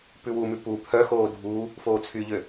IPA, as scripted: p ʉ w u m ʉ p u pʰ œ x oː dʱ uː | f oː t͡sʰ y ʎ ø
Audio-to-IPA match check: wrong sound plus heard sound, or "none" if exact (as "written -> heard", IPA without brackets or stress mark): none